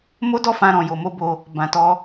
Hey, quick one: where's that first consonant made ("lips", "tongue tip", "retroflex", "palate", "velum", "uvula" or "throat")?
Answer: lips